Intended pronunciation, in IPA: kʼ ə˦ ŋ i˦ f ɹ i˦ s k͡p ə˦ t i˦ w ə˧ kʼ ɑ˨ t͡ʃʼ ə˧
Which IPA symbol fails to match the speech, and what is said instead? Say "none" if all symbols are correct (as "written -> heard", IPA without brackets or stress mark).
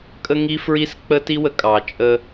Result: none